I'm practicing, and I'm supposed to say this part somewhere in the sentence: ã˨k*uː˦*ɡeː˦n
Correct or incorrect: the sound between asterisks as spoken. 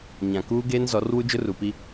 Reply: correct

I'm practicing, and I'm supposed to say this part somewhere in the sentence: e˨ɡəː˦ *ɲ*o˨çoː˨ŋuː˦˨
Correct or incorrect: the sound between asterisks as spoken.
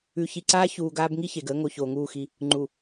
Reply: incorrect: ŋ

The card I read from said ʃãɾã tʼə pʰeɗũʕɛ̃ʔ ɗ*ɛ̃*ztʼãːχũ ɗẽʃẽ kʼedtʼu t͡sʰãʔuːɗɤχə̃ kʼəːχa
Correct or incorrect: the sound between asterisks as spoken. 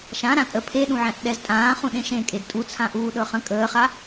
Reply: incorrect: ɛ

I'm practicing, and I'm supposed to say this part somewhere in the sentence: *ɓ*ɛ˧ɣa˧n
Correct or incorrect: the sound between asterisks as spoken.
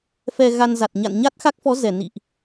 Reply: incorrect: f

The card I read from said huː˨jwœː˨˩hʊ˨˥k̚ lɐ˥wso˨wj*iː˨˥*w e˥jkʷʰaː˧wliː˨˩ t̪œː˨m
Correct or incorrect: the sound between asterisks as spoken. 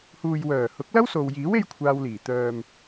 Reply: correct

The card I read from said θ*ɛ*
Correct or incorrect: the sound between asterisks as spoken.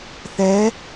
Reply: correct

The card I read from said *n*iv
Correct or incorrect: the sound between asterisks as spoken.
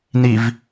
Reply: correct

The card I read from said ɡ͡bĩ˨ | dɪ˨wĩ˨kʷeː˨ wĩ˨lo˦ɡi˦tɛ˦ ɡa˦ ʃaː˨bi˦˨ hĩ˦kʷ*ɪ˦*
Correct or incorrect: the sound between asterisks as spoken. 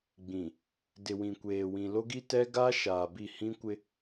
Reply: correct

